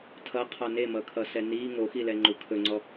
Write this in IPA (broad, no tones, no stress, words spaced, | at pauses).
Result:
tʰʌqʰɔ nemʌkʰʌsɛ ni ŋoxilɛŋ͡ǃu kʰɵŋ͡ǀɔ